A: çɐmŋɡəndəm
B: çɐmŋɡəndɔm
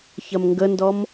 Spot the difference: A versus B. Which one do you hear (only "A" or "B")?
B